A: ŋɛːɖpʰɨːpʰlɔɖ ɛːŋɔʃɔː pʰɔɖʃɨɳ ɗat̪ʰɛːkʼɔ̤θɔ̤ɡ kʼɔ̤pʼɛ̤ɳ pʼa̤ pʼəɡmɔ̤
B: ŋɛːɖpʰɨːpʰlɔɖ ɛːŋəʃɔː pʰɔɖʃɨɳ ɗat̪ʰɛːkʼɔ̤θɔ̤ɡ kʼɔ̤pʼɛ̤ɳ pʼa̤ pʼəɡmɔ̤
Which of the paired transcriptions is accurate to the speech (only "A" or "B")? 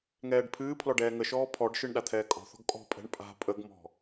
B